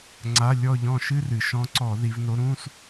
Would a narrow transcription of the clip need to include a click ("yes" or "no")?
yes